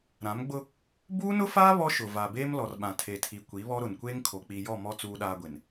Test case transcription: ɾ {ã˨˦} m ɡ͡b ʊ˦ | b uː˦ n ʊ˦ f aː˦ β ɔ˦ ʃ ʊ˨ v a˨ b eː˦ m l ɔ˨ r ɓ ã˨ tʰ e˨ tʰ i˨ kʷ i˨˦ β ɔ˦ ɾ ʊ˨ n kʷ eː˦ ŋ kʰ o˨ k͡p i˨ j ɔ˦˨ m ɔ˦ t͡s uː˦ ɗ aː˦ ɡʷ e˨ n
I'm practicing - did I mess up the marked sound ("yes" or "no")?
no